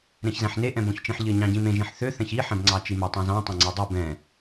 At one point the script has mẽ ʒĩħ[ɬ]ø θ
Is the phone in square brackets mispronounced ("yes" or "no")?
yes